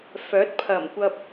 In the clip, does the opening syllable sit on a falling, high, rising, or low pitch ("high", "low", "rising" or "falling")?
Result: rising